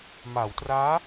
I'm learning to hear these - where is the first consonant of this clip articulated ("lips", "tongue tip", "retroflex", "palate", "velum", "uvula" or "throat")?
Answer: lips